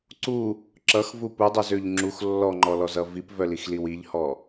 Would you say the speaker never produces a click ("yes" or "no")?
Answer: no